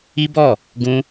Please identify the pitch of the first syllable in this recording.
high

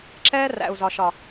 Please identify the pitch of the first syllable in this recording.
high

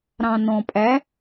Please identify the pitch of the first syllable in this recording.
low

